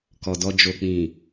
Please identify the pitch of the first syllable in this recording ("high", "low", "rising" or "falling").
low